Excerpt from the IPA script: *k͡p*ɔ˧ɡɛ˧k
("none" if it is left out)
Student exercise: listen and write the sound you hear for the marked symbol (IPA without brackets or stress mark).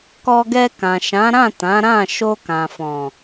k